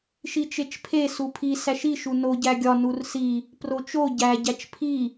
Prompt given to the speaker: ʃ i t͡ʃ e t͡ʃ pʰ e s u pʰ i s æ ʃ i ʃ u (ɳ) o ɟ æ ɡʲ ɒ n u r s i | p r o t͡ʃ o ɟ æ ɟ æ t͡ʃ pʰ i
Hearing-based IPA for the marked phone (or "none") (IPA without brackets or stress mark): n